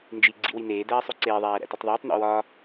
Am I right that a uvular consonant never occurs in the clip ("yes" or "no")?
yes